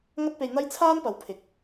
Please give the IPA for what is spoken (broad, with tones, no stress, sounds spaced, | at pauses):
ŋ ɐ˥ t̚ p e˧ j n̪ ɐ˥ j t͡sʰ aː˥ n p ɐ˨˧ w pʰ ɪ˨ k̚